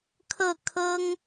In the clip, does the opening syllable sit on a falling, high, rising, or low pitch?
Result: falling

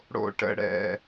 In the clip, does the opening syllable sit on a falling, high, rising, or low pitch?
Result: low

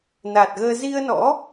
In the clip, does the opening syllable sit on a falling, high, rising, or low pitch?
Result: low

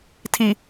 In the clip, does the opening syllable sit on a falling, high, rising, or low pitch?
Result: low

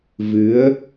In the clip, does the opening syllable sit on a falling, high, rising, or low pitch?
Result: rising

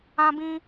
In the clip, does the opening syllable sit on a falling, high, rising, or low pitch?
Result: high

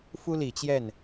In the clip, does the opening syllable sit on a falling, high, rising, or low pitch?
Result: high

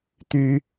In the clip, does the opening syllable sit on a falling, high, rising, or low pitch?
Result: high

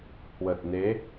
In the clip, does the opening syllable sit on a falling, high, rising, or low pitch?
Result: low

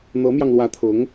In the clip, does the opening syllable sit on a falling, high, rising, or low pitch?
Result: rising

